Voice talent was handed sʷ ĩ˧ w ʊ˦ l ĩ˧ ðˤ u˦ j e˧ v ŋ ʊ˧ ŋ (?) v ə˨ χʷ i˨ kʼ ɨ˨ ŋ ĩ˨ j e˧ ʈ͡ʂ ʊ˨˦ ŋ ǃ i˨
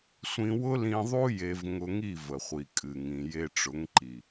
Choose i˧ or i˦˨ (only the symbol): i˦˨